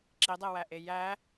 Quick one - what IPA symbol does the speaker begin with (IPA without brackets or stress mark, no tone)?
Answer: ǁ